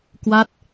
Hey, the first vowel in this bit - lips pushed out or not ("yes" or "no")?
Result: no